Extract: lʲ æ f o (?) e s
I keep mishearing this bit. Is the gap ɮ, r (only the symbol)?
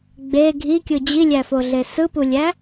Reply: ɮ